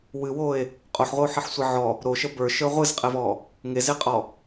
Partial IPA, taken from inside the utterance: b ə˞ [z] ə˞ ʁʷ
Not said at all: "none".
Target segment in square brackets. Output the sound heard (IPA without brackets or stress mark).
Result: ʃ